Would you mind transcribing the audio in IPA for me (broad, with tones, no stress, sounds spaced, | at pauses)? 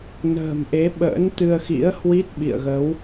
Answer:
n ə̤ː˨˩ m ʔ e˨˦ ɓ ə̰ː˧˥ n t̪ ɨ˧ ə̯ x ḭ˧˥ ə̯ h w i˦˥ t̚ ɓ ḭ˧˨ ə̯ ɣ ə˨˦ w